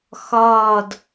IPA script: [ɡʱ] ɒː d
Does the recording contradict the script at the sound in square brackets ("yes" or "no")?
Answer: yes